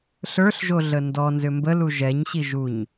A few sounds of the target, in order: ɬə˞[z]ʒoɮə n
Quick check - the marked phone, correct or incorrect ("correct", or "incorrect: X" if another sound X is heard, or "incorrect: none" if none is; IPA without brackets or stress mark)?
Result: incorrect: ɬ